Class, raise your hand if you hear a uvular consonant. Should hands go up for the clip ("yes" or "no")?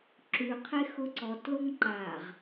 yes